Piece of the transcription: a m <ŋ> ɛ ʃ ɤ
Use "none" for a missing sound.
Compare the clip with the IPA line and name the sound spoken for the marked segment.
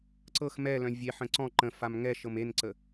ŋ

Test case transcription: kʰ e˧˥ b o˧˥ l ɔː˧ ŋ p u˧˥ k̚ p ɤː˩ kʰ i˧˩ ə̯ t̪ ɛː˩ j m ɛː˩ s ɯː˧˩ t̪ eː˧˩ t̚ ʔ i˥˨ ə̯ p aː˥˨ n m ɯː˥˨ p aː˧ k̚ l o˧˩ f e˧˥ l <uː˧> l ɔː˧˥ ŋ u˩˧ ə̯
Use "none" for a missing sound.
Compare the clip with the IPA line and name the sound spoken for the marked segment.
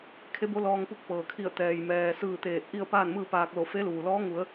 uː˩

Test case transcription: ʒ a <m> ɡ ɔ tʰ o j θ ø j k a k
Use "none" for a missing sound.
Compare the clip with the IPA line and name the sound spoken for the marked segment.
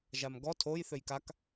m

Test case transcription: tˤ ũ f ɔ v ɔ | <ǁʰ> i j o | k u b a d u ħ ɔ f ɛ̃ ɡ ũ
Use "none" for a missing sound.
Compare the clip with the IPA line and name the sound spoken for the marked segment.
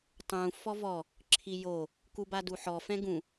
ǁʰ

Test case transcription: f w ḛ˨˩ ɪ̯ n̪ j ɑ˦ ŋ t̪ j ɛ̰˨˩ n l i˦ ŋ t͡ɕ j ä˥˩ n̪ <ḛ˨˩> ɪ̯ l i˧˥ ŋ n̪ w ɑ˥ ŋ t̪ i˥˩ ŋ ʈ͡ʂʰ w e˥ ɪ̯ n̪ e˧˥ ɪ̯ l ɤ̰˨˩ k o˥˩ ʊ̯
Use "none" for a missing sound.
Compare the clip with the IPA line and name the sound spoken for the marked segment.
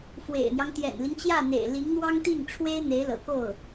ḛ˨˩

